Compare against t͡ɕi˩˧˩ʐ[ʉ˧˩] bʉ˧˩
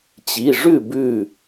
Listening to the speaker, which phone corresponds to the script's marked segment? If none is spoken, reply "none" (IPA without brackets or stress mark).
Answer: ʉ˥˩